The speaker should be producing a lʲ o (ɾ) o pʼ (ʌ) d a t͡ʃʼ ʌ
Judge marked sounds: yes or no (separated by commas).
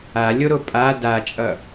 yes, no